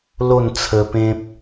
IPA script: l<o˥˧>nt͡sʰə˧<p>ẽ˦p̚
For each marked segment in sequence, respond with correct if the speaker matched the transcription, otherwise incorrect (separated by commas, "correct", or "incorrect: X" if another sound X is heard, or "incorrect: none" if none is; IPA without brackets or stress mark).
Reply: correct, correct